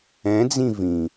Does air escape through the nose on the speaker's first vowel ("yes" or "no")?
yes